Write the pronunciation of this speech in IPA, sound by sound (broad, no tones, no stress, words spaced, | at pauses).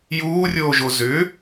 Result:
juːrʲoːʒo zʏ